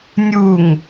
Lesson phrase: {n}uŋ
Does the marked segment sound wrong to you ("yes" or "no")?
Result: yes